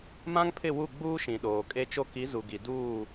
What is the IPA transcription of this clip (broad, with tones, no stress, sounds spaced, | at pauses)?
m ã˦ ŋ pʰ ɪ˦˨ w u˦˨ ɡ͡b uː˦ ʃ ĩ˨ ɗ oː˨ kʼ e˦ t͡ʃ o˦ k i˨˦ z u˨ ɡ i˨ d uː˦˨